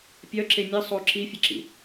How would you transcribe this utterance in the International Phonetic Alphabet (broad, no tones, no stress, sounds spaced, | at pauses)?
pʲ œ ǁ e mʲ ɘ sˤ o ǁ i fʲ ɘ ǁ ḭ